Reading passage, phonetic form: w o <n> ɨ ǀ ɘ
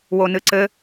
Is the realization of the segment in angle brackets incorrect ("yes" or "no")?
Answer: no